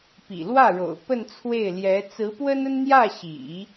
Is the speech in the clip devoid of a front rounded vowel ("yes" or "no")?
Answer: yes